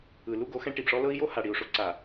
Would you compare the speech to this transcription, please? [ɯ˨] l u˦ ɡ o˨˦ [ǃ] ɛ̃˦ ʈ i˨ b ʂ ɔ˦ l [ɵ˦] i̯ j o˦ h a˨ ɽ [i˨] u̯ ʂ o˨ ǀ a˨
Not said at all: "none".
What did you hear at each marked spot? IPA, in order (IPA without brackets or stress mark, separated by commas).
ɯ˨, x, ɤ˦, i˨